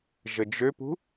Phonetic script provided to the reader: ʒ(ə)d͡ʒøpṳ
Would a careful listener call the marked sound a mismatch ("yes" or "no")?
no